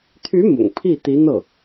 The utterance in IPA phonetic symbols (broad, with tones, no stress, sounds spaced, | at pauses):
t̪ʰ y˧˥ m ʊ̰˨˩ ŋ pʰ i˥˩ t̪ i˧˥ n̪ ɤ˥˩